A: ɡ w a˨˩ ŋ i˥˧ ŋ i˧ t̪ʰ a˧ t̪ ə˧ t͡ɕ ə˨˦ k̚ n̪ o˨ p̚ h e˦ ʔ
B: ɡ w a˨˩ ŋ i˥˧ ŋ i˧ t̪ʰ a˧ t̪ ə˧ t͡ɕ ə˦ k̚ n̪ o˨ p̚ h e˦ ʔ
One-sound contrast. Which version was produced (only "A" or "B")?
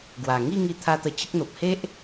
B